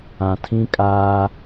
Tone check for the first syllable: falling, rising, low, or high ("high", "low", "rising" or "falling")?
low